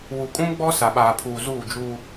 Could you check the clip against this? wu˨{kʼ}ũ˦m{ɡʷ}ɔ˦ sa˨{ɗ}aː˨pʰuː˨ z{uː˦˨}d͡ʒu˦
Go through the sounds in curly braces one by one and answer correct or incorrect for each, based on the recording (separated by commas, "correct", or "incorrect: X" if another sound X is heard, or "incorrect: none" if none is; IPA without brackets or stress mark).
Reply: correct, incorrect: ɡ͡b, incorrect: ɓ, correct